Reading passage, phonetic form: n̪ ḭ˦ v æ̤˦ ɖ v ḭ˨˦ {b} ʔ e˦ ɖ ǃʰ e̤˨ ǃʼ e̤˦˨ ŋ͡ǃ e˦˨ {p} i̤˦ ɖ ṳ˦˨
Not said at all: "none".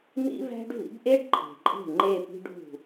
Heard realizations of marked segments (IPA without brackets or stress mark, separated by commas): b, p